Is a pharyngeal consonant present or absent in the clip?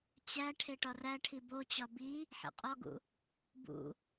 present